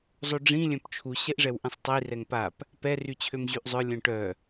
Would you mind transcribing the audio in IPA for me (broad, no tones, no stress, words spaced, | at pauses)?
zˤoɖ͡ʐĩ lʲœ̃pt͡ʃʰu ɕɛʔʐɛwʔĩsˤtˤi rɛŋpap | pɛ ryt͡ɕʰømʑyʔzˤœ lʲœ̃ʈœ